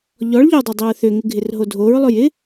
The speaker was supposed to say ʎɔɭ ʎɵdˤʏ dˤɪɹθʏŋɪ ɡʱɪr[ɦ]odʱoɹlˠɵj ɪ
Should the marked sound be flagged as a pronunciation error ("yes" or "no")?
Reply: no